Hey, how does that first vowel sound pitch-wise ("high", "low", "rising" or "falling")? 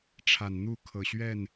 low